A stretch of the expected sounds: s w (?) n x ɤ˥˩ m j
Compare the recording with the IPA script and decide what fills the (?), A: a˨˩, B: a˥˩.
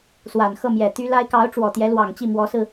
A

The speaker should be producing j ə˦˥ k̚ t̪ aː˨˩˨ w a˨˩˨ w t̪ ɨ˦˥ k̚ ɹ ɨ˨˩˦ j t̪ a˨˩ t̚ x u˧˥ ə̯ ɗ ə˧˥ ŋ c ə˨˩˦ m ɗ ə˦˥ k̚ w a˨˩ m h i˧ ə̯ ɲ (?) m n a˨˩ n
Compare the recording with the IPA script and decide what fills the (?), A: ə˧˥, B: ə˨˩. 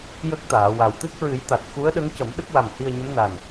A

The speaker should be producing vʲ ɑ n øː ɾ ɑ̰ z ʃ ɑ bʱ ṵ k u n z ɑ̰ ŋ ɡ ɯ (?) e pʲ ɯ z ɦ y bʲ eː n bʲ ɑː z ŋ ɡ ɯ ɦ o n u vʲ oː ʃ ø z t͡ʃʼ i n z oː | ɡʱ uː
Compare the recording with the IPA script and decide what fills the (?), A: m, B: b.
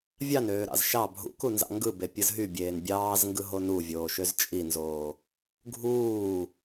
B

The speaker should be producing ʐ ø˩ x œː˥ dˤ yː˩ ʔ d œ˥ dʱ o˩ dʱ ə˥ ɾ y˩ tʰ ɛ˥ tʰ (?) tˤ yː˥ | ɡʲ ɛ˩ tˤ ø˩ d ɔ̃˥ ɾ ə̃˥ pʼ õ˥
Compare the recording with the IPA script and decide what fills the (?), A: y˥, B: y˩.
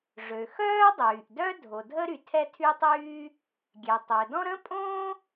A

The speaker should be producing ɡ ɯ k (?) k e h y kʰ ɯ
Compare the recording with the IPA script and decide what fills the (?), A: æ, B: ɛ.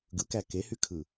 A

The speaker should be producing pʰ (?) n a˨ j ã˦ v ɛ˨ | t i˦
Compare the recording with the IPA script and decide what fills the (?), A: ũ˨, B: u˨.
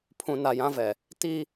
A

